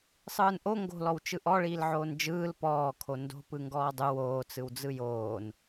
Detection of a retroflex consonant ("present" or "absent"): present